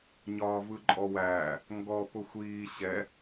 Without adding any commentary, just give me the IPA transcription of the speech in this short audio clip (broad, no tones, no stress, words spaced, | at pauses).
ɲɒːvɯǃʼɔwæː | ŋɡɔpʊ xʷiː ɕɛ